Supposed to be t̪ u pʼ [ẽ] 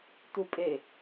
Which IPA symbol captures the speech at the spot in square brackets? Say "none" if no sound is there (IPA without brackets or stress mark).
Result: e